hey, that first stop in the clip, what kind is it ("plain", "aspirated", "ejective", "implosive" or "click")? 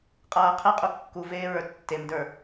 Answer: ejective